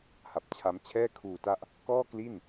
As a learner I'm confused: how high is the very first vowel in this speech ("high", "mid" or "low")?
low